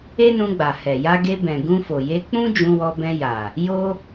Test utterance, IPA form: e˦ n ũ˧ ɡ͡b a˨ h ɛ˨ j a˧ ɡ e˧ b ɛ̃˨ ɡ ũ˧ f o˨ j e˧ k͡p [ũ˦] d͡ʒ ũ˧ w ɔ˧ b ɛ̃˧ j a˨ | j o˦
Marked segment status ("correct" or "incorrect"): correct